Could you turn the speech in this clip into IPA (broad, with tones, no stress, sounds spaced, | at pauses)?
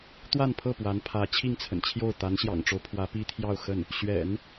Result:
t̪ w a˥˧ n pʰ ɤ˥˩ p w a˧˥ n pʰ ä˧˥ t͡ɕʰ i˥˩ ŋ t͡sʰ ə̰˨˩ n t͡ɕʰ j o˥˩ ʊ̯ t̪ a˧˥ n ɕ j ɑ̰˨˩ ŋ ʈ͡ʂ o˦ ʊ̯ pʰ w ä˧˥ p i˥ t̪ʰ j ɑ˥˧ ʊ̯ x ə˥˩ n | ɕ ɥ ɛ̰˨˩˦ n